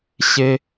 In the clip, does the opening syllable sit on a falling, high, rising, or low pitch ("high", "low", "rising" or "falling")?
high